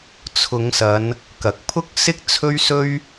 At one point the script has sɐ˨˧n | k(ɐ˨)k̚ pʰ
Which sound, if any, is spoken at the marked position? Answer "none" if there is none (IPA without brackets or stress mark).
ɐ˨